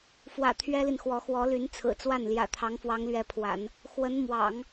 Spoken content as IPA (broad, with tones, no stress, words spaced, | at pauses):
fwä̰˨˩ t̪ʰɥɛ˥li˨nxwɔ˧˥ xwɔ˧˥ly˧˥nt͡sʰɹ̩˨˩ t͡swa˥˩nljä̰˨˩ t̪ʰɑ˧˥ŋfwɑ˧˥ŋlɥɛ˧˥pʰwa̰˨˩˦n | xwə˧˥n mwɑ̰˨˩˦ŋ